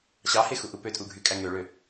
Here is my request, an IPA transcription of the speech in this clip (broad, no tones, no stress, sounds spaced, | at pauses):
ɕ ɑ h e x u ʔ u p ø tʼ u ɡʱ y kʼ æ ŋ ø ɭ ø